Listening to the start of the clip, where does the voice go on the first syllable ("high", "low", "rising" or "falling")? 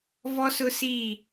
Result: high